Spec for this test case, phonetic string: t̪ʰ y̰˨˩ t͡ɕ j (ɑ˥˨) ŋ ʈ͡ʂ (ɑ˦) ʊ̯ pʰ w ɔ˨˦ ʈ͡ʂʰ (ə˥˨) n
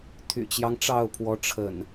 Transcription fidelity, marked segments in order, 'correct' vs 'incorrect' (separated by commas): incorrect, incorrect, incorrect